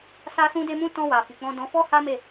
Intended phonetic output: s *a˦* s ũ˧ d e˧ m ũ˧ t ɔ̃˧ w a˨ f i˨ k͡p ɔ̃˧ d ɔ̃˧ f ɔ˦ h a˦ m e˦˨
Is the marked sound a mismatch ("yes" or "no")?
yes